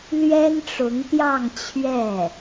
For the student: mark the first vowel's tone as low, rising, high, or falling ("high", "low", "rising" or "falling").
high